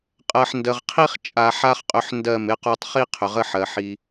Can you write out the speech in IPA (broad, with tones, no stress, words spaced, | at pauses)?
qʼɜ˨ħndə˨ʁqʰi˦χ t͡ʃʼa˨ħa˦χqʼʏ˧ħ ndɜ˦˨mɪ˦qo˦tˤ χi˦ qʰʏ˨ʁə˦ħɜ˨ ħi˧